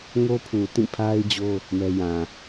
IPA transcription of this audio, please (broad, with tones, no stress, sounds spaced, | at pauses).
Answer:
ŋ o˦ pʰ u˨ t ĩ˦˨ pʰ a˦ ɪ̯ d͡ʑ o˦ | m ɛ˦ j ã˨